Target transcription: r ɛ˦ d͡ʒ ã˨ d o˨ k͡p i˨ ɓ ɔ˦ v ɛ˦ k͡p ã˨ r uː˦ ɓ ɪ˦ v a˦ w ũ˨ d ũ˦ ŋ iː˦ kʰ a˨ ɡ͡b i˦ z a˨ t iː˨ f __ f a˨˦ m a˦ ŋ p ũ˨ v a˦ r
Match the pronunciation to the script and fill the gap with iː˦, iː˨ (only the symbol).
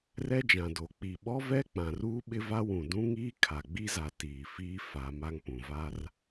iː˦